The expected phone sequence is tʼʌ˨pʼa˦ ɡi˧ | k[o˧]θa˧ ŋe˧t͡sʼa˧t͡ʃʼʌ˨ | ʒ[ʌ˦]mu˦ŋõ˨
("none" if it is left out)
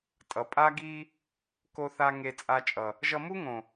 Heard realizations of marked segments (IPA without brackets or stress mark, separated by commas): o˧, ʌ˧